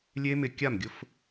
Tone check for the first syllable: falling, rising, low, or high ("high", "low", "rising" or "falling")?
high